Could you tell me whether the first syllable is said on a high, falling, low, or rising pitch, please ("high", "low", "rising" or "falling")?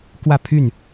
falling